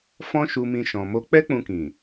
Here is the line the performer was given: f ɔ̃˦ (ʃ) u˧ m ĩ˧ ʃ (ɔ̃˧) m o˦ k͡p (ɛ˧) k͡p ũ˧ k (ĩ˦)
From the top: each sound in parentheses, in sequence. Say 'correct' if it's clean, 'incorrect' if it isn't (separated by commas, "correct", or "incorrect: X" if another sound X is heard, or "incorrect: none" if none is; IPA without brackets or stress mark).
correct, correct, incorrect: ɛ˦, incorrect: ĩ˨